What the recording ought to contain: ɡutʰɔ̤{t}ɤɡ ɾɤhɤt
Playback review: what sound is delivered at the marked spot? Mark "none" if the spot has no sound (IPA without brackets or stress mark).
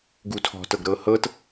t